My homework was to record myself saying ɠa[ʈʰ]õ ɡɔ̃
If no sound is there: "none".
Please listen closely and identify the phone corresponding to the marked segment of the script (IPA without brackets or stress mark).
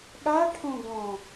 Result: ʈʰ